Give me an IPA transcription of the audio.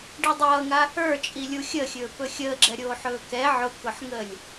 ɖidˤʌːŋa | ə˞t͡ʃʼilʲu xʲəxʲɵː pɵxʲəːɡ͡ǁɛ ɾʲoːħɵːkɛ ʕʊkʊħŋəːlʲ

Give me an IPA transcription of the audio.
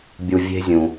bʲu˨ vʲe̤˥zʲũ˨

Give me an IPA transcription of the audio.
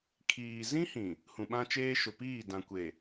kʰiː˨ zĩ˦hĩ˨ | hũ˨ɓã˦t͡ʃeː˦ ʃʊ˨piː˦˨ dã˨kʷe˨

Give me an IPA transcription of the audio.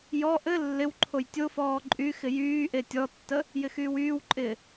jɔ ʔɘ lːɪwǃʰoj tʲofɔː ǃʼy xɪjyːʔe tʲɔtːə | jɪxyːwyːwǃʼɪː

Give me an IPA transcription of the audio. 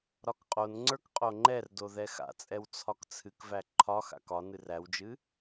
ɾɒkqʼonŋ͡ǀə˞k qʼoŋ͡ǃɛrdo ðɛxa̰t͡sʼɛw t͡sʰɒkt͡sʰɨkvæ ǃʰɒxa̰k ɒnɨr æwd͡ʒɨ

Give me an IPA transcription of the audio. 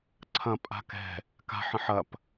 ǀʰɐ̃ pʼa̤kɛ̤ | ka̤ ħə̃ħɐp

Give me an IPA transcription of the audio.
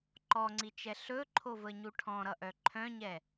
ǃɔŋ͡ǀit͡ʃɛ ɬɵǃʰovəɲu ʈʰɔ̃ɾʌʔœ ǃʰœ̃ɲɛ

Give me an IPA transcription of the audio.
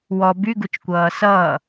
wɔ byɡut͡ʃkʷʌː sʌː

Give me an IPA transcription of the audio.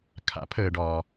kʰa̰˩˥pʰəː˩ɖɒː˩

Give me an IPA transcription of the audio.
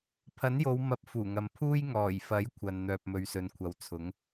pʰɐ˨˥njo˨˧wmɐ˨˥p̚ fuː˨˩ŋɐ˨mpʰuː˥j ŋɔː˨˩j fɐ˨˥jkʷʰɐ˨n n̪œː˨p̚mɵ˨˧ɥsɵ˨nkʷʰɐ˨w t͡sʰʊ˨˥ŋ

